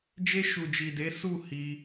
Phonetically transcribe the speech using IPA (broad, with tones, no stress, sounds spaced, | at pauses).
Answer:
d͡ʒ e˧ ʃ u˨ d͡ʒ i˨ d e˨˦ s u˦˨ h i˧